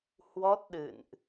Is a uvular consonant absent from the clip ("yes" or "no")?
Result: yes